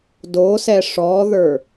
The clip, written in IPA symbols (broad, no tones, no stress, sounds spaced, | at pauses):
d o s ɛ ʂ ɔ ð ə˞